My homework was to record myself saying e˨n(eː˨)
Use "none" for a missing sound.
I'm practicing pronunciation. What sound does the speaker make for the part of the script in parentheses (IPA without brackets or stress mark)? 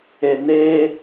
eː˦